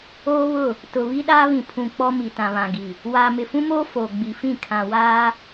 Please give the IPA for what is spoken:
oː˦ β ʊ˦˨ | t ʊ˨ β i˦ ɗ aː˦ β ĩ˨ pʰ ũ˨ k͡p ɔ˦ m i˨ t ã˨ β ã˨ ɡ i˨ | w aː˨ m ɪ˨ f ũ˦ m oː˦ f oː˨ ɡ͡b i˨ f ĩ˦˨ kʰ ã˨ w aː˦

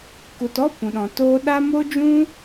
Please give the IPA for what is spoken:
k u˨ t ɔ˦ p ũ˨ ɗ ɔ̃˨ t oː˦ ɗ a˦ m o˦ d͡ʒ ũ˦

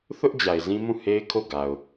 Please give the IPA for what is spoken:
θ ʊ˦ ʔ d͡ʑ a˨ ɪ̯ z ĩ˦ m ũ˦˨ h e˦ ɪ̯ kʰ o˦˨ ɡ a˨ ʊ̯

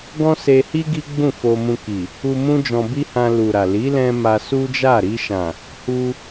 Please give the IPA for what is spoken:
ɡ ɔ̃˦ s e˧ h i˦ ɡ i˦ ɡ͡b ũ˦˨ f o˧ m ũ˧ k i˨ | u˧ m ũ˦ d͡ʒ ɔ̃˧ b i˦ h ã˧ l u˨ ɾ a˨ l i˨˦ l ɛ̃˧ m a˧ s u˦ d͡ʒ a˦˨ ɾ i˧ ʃ ã˨ | h u˧

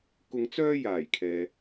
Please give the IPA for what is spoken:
k ʊ˧ ŋ t͡s œː˥ j aː˨˩ j kʰ ɛː˨

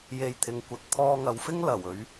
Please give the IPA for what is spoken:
j e˧ j t̪ʰ ɪ˨˧ ŋ kʷ ɐ˨ t̚ t̪ʰ ɔː˧ ŋ ɐ˨˧ w f ɪ˥ ŋ l ɐ˨˩ w ɵ˨˥ ɥ

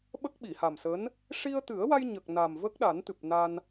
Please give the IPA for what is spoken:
ɓ ə˦˥ k̚ ɓ i˨˩˨ h a˨˩ m s əː˧˥ n | ʂ i˧ ə̯ t̪ ɨ˨˩˦ ə̯ w a˧ j ɲ ə˨˩ k̚ n a˨˩ m v ə˦˥ k̚ ɗ a˨˩˦ n t̪ ɨ˨˩ p̚ n a˧ n

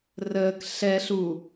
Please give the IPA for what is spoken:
r əː k ɬ ɛ ɬ u

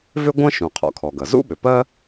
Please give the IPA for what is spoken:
v ʏ˥ ɡʷ ɐ̃˥ ʃ ũ˩ qʰ ɔ̰˩ kʰ ɔ˩ ɡ ɐ˩ z ṵ˥ ɓ ʏ˩ p ɜ˥

